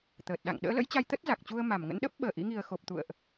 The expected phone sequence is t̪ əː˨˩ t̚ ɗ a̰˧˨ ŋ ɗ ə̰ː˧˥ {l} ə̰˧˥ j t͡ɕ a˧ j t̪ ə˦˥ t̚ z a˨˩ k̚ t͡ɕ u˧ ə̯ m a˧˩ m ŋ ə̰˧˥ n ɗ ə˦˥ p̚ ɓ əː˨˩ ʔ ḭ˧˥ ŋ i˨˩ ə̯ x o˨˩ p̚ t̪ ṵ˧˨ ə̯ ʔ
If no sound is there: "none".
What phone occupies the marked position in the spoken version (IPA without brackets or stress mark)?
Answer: l